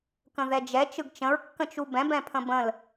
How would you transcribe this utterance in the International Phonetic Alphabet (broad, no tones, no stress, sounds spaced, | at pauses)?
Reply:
k ə̃ ð ɛ d͡ʒ ɛ t͡ʃ ɯ ɡ t͡ʃ ə̃ ɹ kː ə̃ t͡ʃ u b ɛ̃ b ɛ̃ pʰ ə̃ b ə̃ l